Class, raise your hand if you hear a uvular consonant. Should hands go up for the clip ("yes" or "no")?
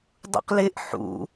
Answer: yes